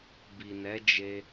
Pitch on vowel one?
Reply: low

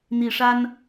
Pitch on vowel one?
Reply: low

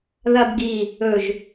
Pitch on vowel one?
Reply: low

